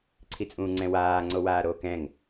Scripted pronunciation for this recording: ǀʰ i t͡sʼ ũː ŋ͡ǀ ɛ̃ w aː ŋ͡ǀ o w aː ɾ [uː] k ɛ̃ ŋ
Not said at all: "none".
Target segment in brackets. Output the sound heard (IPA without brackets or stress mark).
oː